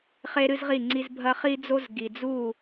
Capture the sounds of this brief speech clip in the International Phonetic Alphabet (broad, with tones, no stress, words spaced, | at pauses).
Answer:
χe˦ɾɨ˦zʁi˦˨ŋ͡ǀi˦z bʱɐ˦χi˦d͡zo˦z ɡi˨d͡zu˦˨